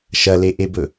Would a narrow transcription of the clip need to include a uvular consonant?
no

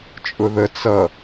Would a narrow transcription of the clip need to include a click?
no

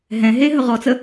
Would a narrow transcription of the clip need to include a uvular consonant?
yes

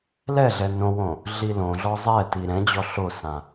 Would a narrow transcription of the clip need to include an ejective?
no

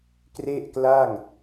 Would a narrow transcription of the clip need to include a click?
no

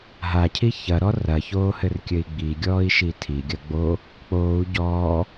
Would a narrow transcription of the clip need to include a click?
no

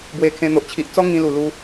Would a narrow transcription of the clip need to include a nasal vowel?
yes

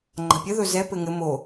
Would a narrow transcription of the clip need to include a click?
yes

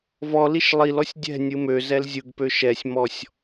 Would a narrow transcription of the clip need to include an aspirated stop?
no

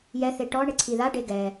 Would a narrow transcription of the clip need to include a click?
yes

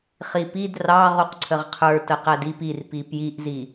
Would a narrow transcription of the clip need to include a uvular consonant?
yes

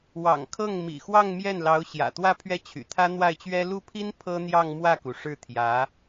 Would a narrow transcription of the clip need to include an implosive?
no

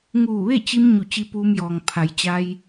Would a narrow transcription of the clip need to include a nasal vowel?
no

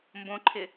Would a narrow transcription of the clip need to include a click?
yes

